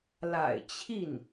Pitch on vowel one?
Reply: low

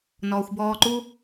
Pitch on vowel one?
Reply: low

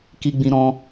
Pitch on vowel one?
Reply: high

